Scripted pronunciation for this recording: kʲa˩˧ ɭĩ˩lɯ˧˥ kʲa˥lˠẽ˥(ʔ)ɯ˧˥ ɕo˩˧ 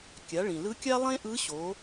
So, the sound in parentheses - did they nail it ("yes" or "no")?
yes